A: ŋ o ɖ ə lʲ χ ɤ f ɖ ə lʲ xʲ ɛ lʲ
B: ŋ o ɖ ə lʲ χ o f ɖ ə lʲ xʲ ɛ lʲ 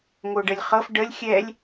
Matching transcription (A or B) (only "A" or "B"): A